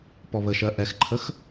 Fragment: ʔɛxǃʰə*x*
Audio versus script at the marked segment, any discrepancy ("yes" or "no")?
no